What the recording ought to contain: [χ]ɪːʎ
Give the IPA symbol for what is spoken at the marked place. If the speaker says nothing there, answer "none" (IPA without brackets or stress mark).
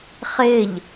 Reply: χ